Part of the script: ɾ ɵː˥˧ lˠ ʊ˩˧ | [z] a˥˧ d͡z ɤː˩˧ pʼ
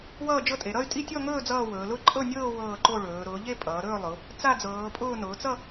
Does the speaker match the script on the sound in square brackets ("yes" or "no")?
no